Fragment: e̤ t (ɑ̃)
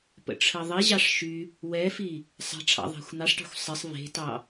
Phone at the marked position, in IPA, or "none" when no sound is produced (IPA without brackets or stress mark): ɑ